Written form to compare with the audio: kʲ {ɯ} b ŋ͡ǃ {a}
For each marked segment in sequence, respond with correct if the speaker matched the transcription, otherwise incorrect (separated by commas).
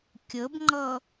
incorrect, incorrect